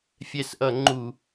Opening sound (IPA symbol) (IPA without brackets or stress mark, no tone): fʲ